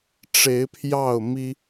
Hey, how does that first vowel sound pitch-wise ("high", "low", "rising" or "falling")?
rising